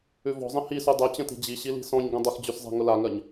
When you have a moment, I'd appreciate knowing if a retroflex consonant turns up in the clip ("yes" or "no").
no